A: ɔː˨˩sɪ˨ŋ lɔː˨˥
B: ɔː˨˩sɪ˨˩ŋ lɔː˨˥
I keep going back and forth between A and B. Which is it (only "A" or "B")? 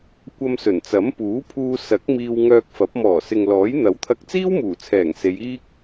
A